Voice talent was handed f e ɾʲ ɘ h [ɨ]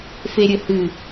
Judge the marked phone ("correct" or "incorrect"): correct